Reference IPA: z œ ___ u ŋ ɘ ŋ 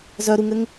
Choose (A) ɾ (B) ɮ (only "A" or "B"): A